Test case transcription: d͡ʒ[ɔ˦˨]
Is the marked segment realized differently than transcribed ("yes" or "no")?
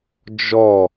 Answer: no